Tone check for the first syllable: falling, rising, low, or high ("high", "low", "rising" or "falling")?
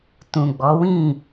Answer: low